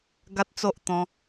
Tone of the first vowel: high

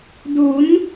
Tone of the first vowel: rising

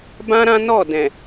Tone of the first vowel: high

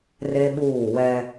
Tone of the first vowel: high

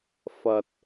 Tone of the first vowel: low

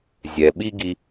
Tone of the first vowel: low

